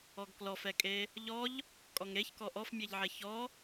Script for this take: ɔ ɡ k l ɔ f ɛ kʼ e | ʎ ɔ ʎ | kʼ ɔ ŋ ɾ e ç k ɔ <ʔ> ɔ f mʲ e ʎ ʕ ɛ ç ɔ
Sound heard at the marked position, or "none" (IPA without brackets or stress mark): ʔ